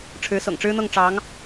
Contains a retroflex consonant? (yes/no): yes